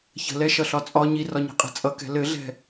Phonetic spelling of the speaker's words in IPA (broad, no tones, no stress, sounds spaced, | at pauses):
ç ə̤ l ɛ ʃ ʌ ɬ ɒ t͡sʼ ɒ ɲ i r ɒ ɲ ɛ̤ qʼ ɛ̤ t͡sʼ ʌ k ɛ̤ l ɘ ɮ ɛ̤